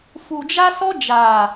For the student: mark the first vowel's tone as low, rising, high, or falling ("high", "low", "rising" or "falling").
low